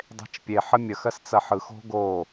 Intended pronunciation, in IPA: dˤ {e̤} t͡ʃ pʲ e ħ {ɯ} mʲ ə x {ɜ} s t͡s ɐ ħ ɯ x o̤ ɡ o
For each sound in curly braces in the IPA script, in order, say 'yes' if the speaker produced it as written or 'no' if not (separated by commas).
yes, no, yes